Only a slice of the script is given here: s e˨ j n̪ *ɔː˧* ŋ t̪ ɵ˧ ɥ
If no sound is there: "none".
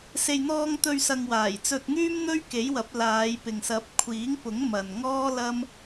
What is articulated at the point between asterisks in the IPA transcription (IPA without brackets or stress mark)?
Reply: ɔː˧